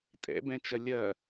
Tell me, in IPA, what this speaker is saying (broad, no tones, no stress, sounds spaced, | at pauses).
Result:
tʼ ɛ̰ b ɛ̃ t͡ʃ ɐ lʲ ɐ